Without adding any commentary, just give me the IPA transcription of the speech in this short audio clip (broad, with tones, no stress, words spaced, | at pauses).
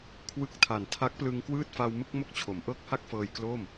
kʰwɯ˦˥k̚tʰa˨˩n tʰa˦˥k̚plɯ˧ŋkwɯː˥˩t̚fa˧w mɯ˥˩k̚mo˥˩k̚t͡ɕʰo˩˦m ʔɤː˥˩k̚ha˥˩k̚ fɤː˧jklo˥˩m